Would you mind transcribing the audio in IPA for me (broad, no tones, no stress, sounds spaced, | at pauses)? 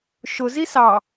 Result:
ʃ ʊ z i s ɑ